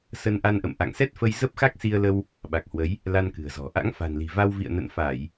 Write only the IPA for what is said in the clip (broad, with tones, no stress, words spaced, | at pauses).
sə˧nʔa˧n ʔə̰˧˨mʔa̰˧˨ŋsɛ˦˥t̚fə˧j zə˦˥p̚xa˦˥k̚ si˧ə̯lə˧w | ɓa˨˩k̚hwə˨˦j | la˧nkɨ̤˨˩ə̯zɔ̤˨˩ ʔa̰˧˥ŋfa̤˨˩nli̤˨˩va˧w vḭ˧˨ə̯nə̰˧˨nfa˧˩˨j